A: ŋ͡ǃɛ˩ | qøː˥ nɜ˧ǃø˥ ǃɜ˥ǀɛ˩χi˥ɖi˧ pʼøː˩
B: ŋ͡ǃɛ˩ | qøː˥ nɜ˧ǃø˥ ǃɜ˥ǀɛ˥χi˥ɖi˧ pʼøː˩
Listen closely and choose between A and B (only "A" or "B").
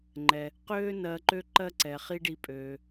A